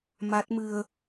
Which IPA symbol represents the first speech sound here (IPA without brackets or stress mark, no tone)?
m